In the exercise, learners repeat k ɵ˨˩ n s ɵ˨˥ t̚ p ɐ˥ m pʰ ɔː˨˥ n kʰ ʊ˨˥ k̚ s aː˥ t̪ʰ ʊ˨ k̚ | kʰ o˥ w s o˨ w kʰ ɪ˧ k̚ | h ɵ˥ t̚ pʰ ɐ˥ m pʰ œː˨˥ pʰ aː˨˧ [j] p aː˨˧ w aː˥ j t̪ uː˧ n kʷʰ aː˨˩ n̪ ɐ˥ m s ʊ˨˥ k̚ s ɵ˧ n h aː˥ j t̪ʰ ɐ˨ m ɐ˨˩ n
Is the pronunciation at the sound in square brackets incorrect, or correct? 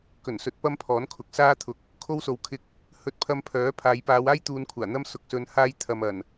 correct